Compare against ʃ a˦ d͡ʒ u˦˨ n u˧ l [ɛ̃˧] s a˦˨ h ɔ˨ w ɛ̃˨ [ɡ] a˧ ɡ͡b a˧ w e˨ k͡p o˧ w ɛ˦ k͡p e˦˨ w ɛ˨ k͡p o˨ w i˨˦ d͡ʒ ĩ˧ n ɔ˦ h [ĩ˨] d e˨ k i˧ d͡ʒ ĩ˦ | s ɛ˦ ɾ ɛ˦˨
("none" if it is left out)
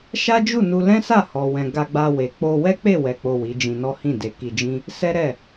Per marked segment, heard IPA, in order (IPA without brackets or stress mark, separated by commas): ɛ̃˦, ɡ, ĩ˦˨